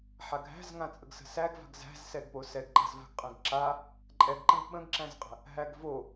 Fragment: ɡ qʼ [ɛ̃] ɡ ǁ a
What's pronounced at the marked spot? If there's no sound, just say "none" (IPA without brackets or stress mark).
ɛ̃